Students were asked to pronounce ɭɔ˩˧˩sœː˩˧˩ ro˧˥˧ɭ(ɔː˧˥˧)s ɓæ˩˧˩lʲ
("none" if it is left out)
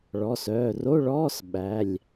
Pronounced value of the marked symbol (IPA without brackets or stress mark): ɔː˧˥˧